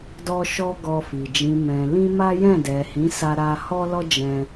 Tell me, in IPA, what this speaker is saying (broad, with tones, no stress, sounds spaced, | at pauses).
d ɔ˦ ʃ ɔ˦ ɡ ɔ˧ f i˨ d͡ʒ ĩ˨ m ɛ̃˨ l ĩ˧ m a˦ j ɛ̃˦˨ d ɛ˨ h ĩ˨˦ s a˦ ɾ a˦ h ɔ˦ l ɔ˦ d͡ʒ ɛ̃˧